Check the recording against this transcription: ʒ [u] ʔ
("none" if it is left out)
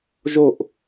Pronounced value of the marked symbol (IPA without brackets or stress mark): o